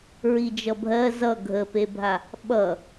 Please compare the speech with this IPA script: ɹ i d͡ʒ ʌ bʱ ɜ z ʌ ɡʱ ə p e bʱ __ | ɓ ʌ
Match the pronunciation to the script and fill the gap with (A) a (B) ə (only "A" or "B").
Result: A